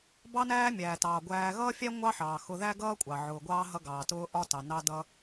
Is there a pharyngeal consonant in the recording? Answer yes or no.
yes